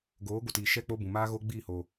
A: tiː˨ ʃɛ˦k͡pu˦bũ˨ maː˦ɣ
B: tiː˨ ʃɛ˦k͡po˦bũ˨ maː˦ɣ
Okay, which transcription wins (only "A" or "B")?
B